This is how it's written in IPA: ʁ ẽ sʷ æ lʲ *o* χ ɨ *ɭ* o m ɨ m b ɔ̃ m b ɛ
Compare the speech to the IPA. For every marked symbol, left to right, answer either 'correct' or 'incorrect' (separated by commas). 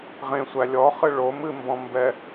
incorrect, correct